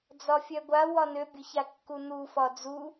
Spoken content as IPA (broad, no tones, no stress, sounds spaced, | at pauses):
d͡z ɒ fʲ œ ɡʷ a w ɒ n ø bʲ ʊ ç a kː u n u f ɒ d͡z u